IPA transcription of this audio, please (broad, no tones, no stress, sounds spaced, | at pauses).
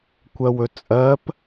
kʷ ɜ w ɵ t͡sʼ ɜ p